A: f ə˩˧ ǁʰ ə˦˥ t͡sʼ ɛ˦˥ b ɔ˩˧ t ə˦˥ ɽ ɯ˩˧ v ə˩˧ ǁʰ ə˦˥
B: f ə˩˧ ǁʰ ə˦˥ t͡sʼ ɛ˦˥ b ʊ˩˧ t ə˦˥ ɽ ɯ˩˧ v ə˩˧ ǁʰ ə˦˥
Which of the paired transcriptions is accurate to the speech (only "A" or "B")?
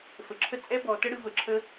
A